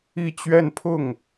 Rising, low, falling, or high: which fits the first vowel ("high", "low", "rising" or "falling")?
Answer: falling